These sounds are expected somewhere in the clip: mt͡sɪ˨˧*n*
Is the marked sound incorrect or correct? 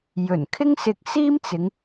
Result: incorrect